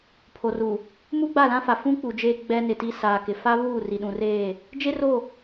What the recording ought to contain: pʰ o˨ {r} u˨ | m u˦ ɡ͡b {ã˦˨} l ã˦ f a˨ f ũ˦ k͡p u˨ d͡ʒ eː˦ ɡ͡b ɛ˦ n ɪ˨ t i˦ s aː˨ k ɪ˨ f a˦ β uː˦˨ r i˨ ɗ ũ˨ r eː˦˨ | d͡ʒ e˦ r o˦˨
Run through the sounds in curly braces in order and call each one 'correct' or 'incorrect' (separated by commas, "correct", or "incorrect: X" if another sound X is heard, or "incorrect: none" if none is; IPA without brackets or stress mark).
correct, incorrect: a˦˨